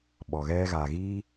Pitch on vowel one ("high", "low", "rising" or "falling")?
low